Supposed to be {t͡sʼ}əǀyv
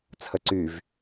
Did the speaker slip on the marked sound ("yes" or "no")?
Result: yes